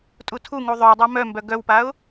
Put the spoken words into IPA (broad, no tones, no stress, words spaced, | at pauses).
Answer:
tʼutʰuŋu ðˤœ dˤamœmbœ ɡœwpaʊ̯